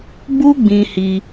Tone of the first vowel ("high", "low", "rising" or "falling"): high